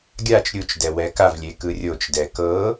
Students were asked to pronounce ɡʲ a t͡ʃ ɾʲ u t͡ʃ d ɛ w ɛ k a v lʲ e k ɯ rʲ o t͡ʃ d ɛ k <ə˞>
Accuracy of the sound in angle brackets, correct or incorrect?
incorrect